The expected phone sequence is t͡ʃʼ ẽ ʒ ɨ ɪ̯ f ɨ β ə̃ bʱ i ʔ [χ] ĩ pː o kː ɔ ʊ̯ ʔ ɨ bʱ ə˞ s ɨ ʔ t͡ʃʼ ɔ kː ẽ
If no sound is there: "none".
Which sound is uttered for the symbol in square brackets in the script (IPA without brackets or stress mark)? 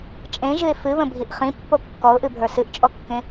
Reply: χ